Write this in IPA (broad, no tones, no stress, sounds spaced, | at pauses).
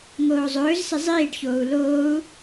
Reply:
ŋ oː zˤ ɵː z s ɪ zˤ iː ɖ ç oː u̯ l oː u̯